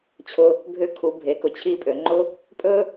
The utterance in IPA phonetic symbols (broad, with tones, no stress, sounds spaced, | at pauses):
t͡ɕʰ ʊ˧ | bʱ ʏ˧ kʰ u˩˧ bʱ e˩˧ k ʊ˩˧ t͡ɕʰ i˧ pʼ ø˩˧ ŋ͡ǃ ʊ˥ | pʼ ɵ˥